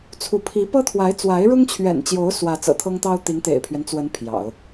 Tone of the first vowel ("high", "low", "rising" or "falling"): rising